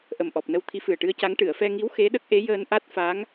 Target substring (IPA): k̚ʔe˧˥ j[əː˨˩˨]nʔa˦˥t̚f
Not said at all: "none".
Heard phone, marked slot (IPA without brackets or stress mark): əː˧